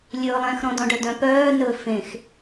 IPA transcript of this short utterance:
lʲ ɵː lˠ ɛ̃ x ɾ ɔ̃ d ɔ̃ ɖ œ d œ̃ p œː n ɵ f ẽ x

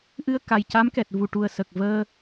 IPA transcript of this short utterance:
ʔ ɨ˧ ə̯ k a˨˩ j c a˧˥ m k ɛ˨˩ t̚ v u˨˩ ʈ u˨˩ ə̯ s ə˨˩ k̚ v əː˧

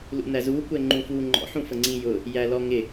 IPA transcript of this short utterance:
l ṵ n æ z u kʷ ɛ ŋ͡ǃ ũ f uː ŋ͡ǃ ɔ̰ ħ ũ f ə ŋ͡ǀ ĩ j ʊ | j æ l ɔ ŋ ɪ

